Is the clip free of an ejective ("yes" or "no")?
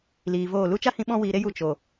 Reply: yes